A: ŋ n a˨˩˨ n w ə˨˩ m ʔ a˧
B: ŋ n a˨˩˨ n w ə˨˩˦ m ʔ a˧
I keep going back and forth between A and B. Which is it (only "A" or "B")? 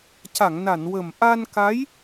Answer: A